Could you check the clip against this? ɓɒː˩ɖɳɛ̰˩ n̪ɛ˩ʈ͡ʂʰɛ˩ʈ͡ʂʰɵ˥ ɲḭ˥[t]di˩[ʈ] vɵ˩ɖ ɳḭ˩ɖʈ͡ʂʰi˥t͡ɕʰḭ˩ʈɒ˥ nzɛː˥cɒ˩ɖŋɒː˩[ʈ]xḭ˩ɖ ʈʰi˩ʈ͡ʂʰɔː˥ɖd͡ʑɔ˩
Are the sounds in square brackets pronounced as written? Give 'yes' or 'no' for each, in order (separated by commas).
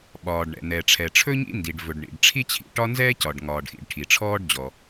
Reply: no, no, no